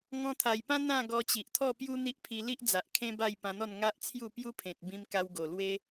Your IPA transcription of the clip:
ŋ ɔ̃˧ t̪ʰ a˨˩ j p ã˦ n̪ ã˥˧ ɡ ɔ˧ t͡ɕ i˨ ʔ t̪ʰ ɔ˥˧ p j u˦ n̪ i˦ ʔ pʰ i˧ l i˦ ʔ d͡z a˨ ʔ kʰ ẽ˦ b a˥˧ j p ã˧ n̪ ɔ˥˧ n ŋ a˦ ʔ t͡sʰ j u˥˧ p j u˦ pʰ ẽ˨ t̚ b ĩ˧ m k a˧ w ɡ o˨˩ l w e˦

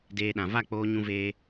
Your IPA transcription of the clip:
d eː˧ ɗ ã˨ v a˦˨ k͡p oː˧ ɲ ũ˦ v eː˦

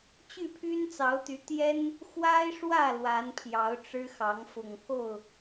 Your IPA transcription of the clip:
t͡ɕ y˥˨ pʰ y˦ n t͡s ɑ˨˦ ʊ̯ t̪ y˨˦ t̪ j ɛ˦ n | x w a˦ ɪ̯ ʂ w ä˥˨ l w a˨˦ n pʰ j ɑ˨˦ ʊ̯ ʈ͡ʂ ɻ̩˦ x ɑ˨˦ ŋ f ʊ˨˩ ŋ k o˥˨ ʊ̯

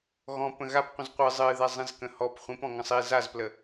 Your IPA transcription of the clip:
ɣ ɔ̃ p ə̃ ɣ a p qʷ ə̃ z qʷ ɨ zˤ ɨ ð ɛ zˤ ĩ z k ə̃ h ɔ p χʷ ĩ p ɔ̃ ŋ ə̃ sˤ i z a z p l ə

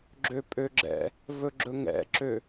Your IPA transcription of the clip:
ɡ͡ǁ ø pʼ ø ɡ͡ǁ ɛ̰ | v ɵ ɡ͡ǁ ɵ ŋ ɛ̰ ǁ ø

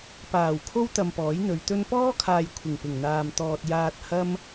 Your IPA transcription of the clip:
p aː˨˩ w kʰ o˥ w t̪ ɐ˧ m p ɔː˨˥ j n̪ ɵ˨˧ ɥ t̪ ɵ˥ n p ɔː˥ kʰ aː˨ j kʷʰ ɪ˨˩ ŋ p ɪ˨˩ ŋ n̪ aː˨ m t̪ ɔː˧ t̚ j aː˧ t̚ h ɐ˥ m

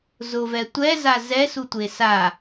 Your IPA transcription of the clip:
z ʊ v ɛ tʷ ɛ z a z ɛ s u tʷ e s a

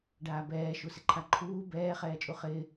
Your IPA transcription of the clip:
ɖ aː b ɛː ʃ u s ɪ ǃʰ a ǃʰ uː b ɛː χ ɛː t͡ʃʼ u χ ɪː

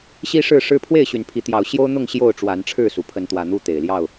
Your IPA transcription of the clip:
ɕ i˦ ʂ ɻ̩˥˨ ʂ ɻ̩˦ pʰ w e˥˨ ɪ̯ ɕ y˨˦ n pʰ i˨˦ t̪ j ɑ˨˦ ʊ̯ ɕ j o˦ ʊ̯ n̪ ʊ˥˨ ŋ ɕ j o˥˨ ʊ̯ ʈ͡ʂ w a˨˦ n ʈ͡ʂʰ ɻ̩˥˨ s u˩ pʰ ə˨˦ n t̪ w ä˨˩ n̪ u˥˨ t̪ e˨˩ ɪ̯ l j ɑ˥˨ ʊ̯

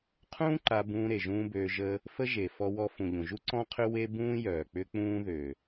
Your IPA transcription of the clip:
qʰ ũː˦ ǃ a˧ b ũː˧ ɾ e˨ ʒ ũː˦ b øː˧ ʒ ə˦ | f ə˦ ʒ e˨ f ɔ˦ w ɔ˦ f ũ˨ ʎ ũ˨ ʒ u˦ ǀ ɔ̃˦ qʰ ʏ˦ w e˦ b ũː˦ j œː˨ k͡p ʏ˦ k͡p ũː˦ ð ø˨

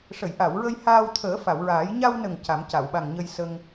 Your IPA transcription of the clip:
ʂ ə˨˩˨ j ʔ a˨˩˨ w ɹ ə˧ j h aː˧ w t̪ʰ əː˨˩˦ f a˨˩˨ w ɹ aː˨˩˦ j ɲ a˧ w n ə˨˩ ŋ c a˨˩˦ m c a˨˩˨ w ɓ a˨˩ ŋ ɲ ə˧ j s ə˧ ŋ

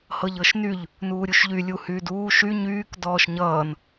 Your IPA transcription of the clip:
h ɤ ʎ ɤ ʃ n y ʎ | n uː ɾʲ u ʃ ʎ y lʲ u h yː d uː ʃ y ɲ yː k d ɔː ʃ ɲ ʌː n

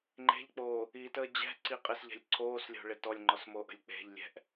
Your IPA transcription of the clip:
ŋ͡ǃ e̤ ʎ k͡p oː | i t əː d͡ʑ ɛ̤ ǀ i qʼ ɪ s ʎ ɛ̤ lʲ ǀʰ oː s lʲ o̤ ɭ ɪ t ɔ lʲ ŋ͡ǃ ɔ s m oː ʔ ə̤ lʲ k͡p e̤ ʎ lʲ ɛ̤ ʔ

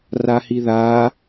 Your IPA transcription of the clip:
r a h i ð a

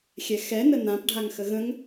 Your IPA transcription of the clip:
xʲ ɛ x ɛ n ə n ã p ɖʱ a ŋ x ə ɣ ə̃ ŋ

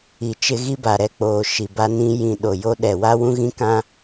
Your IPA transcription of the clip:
i˨ t͡ʃ ɪ˦ ɣ i˦ b a˨ ɾ ɛ˦ k͡p oː˨ ʃ i˨ b a˦ n ĩ˦ j ĩ˨ ɗ o˨ j o˦ ɗ ɛ˨ w a˦ w ũ˦ ɣ ĩ˦ k ã˦

